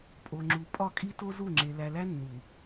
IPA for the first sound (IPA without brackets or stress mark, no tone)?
pʼ